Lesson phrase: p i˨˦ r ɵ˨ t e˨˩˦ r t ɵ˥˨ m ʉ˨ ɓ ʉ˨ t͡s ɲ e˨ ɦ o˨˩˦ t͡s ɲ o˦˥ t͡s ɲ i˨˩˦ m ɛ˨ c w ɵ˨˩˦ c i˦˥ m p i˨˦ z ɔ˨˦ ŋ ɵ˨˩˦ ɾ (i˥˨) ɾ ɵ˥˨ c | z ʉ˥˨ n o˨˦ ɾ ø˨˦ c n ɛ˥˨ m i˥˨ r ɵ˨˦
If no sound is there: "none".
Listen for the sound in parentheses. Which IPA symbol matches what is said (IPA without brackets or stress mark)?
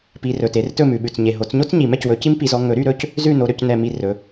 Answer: y˥˨